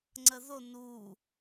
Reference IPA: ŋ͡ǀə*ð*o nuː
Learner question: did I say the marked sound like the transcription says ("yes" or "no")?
yes